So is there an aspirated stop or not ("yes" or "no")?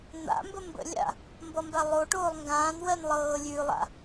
no